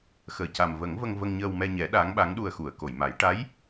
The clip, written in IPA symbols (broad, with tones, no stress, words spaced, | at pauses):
xəː˨˩˨ca˨˩mvə˨˩˦ŋvə˧ŋ və˧ŋɲəː˧wmɛ˧ɲɛ˨˩˦ ɗa˧˥ŋɓa˧˥ŋ ɗu˧ə̯xu˨˩˨ə̯ ko˨˩˨jma˨˩˦j ʈa˧˥j